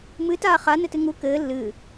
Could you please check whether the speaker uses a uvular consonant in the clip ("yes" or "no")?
yes